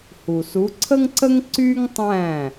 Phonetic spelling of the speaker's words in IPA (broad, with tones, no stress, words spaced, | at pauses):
hu˩su˩˥ǀʰə˥ŋǀə˥ŋ ǀy˥ŋtˤæ̃˥˩